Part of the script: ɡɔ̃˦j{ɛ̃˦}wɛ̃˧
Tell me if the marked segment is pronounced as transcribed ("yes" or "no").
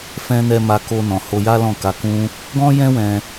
yes